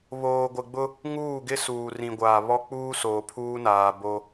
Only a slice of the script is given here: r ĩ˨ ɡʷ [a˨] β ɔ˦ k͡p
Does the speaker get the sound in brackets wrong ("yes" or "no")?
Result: yes